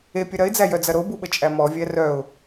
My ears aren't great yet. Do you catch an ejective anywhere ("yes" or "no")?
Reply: yes